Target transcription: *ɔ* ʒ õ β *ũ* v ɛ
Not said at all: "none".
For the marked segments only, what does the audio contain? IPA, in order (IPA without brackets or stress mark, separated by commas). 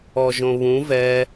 ɔ, ũ